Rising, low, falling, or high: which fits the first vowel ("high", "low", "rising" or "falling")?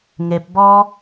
low